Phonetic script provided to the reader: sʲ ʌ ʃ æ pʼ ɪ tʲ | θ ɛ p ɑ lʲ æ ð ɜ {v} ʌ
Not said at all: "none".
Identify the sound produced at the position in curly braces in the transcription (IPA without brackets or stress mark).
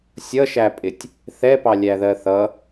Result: θ